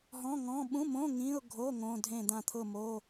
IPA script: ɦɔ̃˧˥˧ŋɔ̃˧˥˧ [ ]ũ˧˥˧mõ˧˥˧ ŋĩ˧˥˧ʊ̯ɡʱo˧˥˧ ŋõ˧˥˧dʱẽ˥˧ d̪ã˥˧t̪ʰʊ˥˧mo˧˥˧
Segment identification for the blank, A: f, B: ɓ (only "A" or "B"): B